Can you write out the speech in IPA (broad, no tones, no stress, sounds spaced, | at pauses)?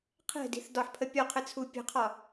qʰ ɛ̤ d i̤ θ d ɒ ħ pʰ ə pʲ ɔ qʰ ɘ t͡sʰ u pʲ ə̤ qʰ ɒ